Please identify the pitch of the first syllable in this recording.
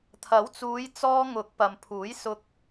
rising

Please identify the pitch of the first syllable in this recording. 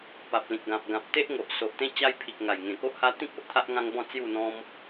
low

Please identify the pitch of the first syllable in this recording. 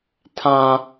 high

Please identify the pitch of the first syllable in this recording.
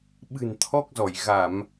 low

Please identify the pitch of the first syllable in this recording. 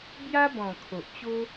high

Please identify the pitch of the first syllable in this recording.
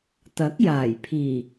rising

